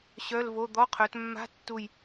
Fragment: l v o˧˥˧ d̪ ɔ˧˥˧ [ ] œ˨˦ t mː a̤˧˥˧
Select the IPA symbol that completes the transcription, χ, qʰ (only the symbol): qʰ